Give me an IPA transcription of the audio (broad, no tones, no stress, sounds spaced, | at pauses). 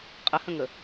qʼ ə h ə̃ ŋ ə